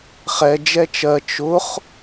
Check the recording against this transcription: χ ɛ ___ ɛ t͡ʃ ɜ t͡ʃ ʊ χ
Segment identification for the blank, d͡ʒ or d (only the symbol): d͡ʒ